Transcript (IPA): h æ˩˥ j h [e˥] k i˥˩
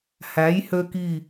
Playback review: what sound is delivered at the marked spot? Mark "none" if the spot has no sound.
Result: ø˥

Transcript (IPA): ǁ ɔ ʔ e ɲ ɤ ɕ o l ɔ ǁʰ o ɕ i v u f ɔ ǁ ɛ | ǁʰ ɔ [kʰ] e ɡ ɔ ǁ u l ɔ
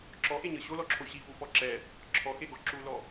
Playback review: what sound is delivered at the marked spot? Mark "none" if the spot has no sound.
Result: x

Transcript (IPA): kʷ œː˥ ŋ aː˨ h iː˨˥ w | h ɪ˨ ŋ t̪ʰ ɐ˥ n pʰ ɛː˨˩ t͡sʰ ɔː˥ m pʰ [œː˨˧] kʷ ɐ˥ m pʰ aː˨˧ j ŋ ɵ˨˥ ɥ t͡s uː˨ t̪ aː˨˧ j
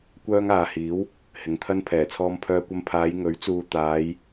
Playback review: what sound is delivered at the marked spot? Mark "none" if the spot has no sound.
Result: œː˥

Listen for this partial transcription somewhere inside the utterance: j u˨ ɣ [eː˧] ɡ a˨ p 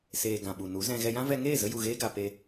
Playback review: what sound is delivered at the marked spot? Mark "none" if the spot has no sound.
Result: eː˧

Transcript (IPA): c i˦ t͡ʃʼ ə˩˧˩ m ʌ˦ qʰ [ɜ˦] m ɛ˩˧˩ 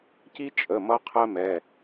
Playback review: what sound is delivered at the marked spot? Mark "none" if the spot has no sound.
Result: ɜ˦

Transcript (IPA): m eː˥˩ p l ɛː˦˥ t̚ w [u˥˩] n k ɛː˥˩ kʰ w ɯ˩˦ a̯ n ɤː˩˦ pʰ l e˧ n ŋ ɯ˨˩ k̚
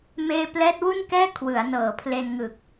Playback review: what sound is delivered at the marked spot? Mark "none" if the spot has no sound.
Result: u˥˩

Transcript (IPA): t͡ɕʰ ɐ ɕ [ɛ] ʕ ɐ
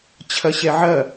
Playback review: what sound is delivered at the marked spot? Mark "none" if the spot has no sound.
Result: ɛ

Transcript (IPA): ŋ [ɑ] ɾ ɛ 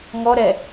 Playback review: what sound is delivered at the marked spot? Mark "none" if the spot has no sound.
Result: ɔ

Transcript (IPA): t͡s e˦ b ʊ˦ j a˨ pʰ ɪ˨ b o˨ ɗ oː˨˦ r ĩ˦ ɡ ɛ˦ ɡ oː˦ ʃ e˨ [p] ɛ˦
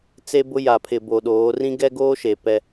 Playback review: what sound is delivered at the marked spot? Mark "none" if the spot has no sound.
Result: p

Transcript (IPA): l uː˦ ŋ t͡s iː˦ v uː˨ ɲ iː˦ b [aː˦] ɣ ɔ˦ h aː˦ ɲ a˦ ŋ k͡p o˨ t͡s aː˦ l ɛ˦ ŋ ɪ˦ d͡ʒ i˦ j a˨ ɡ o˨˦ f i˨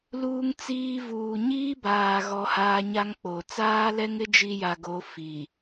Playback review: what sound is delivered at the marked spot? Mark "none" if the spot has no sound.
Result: aː˨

